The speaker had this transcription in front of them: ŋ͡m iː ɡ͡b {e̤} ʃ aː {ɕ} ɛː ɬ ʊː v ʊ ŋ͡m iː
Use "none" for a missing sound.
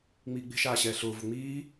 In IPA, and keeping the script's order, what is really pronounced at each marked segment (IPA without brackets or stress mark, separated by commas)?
e̤, ɕ